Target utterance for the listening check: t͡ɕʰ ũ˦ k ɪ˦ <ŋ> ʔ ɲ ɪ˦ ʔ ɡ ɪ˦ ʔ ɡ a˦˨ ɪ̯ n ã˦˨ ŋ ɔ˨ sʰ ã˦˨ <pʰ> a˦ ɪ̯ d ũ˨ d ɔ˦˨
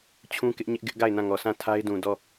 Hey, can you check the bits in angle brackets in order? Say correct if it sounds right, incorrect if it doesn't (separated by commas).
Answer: incorrect, incorrect